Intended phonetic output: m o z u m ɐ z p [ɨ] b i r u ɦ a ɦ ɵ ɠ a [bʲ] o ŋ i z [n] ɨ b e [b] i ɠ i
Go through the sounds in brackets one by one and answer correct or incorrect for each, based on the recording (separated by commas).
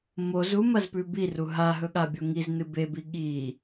incorrect, correct, correct, correct